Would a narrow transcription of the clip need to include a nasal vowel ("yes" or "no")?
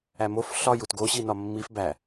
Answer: no